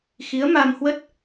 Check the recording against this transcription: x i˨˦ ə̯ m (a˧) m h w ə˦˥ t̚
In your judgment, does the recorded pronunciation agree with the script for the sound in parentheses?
yes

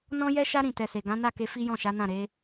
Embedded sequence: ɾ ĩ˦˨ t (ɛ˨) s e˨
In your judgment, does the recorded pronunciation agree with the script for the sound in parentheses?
no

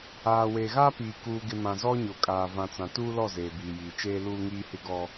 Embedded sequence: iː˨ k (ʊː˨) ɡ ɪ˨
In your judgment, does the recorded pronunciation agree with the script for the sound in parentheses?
no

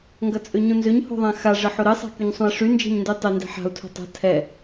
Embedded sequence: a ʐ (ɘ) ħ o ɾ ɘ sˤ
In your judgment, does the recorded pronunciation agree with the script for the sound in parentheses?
yes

